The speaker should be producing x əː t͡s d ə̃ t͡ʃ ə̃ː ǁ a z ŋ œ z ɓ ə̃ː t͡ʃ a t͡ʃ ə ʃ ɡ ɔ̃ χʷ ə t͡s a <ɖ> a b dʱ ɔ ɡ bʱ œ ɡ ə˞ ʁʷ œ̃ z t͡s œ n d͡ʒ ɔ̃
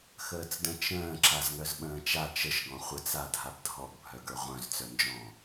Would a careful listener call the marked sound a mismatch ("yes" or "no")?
yes